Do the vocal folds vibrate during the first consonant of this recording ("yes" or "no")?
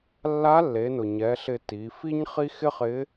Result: yes